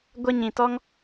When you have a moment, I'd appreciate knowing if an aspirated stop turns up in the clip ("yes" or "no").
no